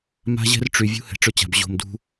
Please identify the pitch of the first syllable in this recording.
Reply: high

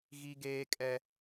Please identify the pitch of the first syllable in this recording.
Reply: high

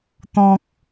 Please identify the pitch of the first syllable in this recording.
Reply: low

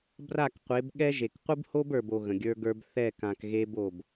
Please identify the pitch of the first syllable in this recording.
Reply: falling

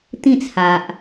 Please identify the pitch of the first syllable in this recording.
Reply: falling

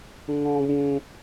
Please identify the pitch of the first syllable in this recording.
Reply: high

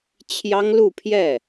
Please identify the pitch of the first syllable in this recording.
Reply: high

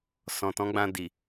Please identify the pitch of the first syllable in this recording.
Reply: low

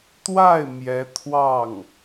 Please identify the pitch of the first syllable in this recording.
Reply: falling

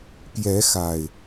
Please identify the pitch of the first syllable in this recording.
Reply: rising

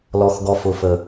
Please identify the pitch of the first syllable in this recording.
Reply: low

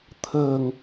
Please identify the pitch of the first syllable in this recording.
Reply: low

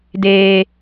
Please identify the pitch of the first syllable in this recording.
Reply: low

